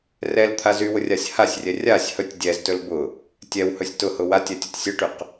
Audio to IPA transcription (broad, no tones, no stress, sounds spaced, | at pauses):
r ɛ l t̪ʰ a z y w ʊ rʲ a sʲ h a sʲ rʲ ɛ rʲ a sʲ h ɵ tʲ dʲ ɛ z t ɵ l b ʊ | tʲ ɛ w h ɵ sʲ t ʊ h ʊ w a tʲ ɛ tʲ ʊ tʲ sʲ ʊ ʈ y q